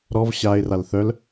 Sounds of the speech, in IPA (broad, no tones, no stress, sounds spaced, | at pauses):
ɾ ɔ v ɕ a ɪ̯ r a l θ œ l